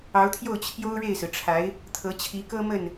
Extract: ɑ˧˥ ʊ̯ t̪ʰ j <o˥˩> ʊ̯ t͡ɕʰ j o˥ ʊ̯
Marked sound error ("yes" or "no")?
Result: no